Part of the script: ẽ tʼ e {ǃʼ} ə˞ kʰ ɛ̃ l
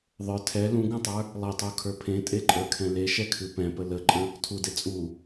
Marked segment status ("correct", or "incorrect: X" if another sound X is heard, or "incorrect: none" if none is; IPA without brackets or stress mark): correct